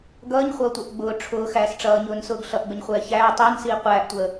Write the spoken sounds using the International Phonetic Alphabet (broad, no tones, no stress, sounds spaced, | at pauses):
ɡ ʌː ɲ χʷ ʌː tʷ ɛ ʔ ɡ͡b ʊː ʈ͡ʂʰ ʊː x æː s ʈ͡ʂ ʌː ɲ ʊː n s ʊː ɡ ɬ ʌ ʔ ɡ͡b ə ɲ χʷ ɛː ç æː tˤ əː n s iː qʷ æː ʔ tʷ əː